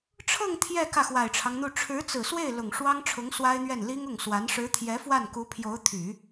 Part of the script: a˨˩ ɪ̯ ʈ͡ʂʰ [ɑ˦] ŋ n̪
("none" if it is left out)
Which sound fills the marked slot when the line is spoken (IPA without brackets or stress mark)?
ɑ˦